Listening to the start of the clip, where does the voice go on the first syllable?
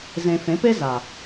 low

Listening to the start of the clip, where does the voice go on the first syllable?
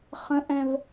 high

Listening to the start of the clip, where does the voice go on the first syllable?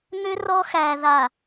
high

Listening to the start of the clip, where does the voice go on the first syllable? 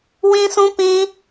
high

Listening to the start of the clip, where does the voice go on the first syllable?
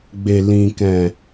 low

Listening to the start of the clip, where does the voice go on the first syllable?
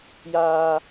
high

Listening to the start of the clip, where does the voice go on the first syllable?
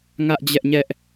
high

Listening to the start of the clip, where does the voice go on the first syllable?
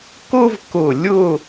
high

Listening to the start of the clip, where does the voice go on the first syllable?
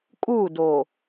falling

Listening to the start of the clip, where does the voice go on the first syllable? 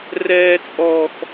high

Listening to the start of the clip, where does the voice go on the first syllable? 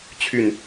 falling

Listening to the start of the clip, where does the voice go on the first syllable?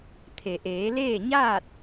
low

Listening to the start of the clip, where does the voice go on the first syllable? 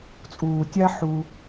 low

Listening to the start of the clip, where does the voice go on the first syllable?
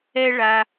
high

